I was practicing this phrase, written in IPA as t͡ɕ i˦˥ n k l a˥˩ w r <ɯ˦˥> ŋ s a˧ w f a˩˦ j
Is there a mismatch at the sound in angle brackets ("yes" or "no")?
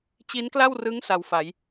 no